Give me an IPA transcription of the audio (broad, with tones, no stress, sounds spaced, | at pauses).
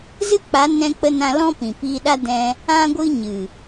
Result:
z ɨ˦ k͡p a˨˦ n ɛ̃˧ k͡p ə˧ n ã˧ l ɔ̃˦ p ĩ˨ p iː˧ ɗ a˦ d ɛ̃˧ | ã˦ ɡʷ ɨ˦ ɲ ɨ˨